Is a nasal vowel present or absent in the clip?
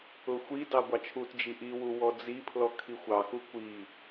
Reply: absent